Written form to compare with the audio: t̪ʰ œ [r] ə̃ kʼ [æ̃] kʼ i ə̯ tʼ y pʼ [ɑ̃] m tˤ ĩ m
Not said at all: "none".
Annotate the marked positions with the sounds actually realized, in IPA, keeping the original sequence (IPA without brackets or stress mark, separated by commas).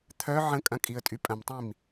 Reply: ʕ, ɐ̃, ɐ̃